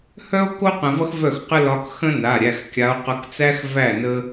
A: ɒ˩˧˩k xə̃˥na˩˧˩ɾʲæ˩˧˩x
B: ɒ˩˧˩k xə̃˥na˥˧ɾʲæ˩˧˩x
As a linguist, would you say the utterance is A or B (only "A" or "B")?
A